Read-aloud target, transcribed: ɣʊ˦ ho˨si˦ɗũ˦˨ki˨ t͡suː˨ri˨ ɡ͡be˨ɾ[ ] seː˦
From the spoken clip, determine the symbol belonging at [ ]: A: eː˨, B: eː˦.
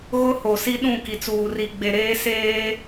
B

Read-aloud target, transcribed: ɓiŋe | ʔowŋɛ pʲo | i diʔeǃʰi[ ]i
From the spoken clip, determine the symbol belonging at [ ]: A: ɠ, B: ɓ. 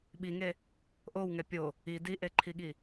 A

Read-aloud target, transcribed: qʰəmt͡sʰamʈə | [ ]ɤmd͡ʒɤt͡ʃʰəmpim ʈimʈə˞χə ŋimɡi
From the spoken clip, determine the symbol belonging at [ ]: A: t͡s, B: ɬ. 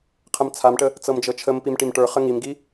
A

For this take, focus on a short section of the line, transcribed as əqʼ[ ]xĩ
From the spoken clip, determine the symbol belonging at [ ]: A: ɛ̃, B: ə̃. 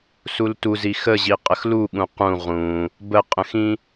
B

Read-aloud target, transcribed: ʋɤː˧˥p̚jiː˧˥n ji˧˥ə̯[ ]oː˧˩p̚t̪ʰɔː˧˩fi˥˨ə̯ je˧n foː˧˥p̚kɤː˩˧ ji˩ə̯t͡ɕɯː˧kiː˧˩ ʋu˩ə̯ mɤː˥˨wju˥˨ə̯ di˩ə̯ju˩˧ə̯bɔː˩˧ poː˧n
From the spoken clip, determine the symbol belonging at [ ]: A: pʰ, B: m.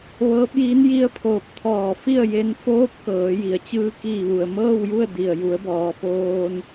A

